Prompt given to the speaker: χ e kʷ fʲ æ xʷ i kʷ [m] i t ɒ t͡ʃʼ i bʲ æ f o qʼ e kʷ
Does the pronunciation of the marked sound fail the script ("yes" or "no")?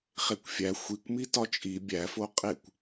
no